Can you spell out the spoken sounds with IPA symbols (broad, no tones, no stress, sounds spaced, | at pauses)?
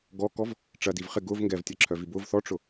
ɡ ɔ k ɔ v | ʈ͡ʂ ɐ d i v χ ɪ ɡ ʊ v ŋ ɡ ɛ v tʲ ɐ ǁʰ œ v i b ʊ v θ ɔ ʈ͡ʂ ʊ